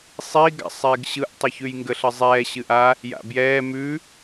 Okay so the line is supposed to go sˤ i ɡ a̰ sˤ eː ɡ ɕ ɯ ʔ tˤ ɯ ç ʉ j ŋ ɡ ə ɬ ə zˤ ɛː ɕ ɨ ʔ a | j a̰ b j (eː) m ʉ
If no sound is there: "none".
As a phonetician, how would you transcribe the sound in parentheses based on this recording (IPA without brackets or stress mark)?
ɛː